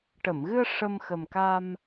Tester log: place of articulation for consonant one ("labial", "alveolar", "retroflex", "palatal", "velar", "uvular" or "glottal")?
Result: retroflex